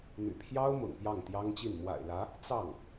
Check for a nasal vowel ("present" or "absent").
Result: absent